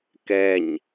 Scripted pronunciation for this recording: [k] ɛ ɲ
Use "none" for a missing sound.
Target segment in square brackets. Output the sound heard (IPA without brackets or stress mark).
k